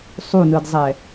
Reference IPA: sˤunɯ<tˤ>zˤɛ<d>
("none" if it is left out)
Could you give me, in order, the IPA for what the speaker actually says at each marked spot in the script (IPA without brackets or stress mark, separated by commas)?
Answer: d, none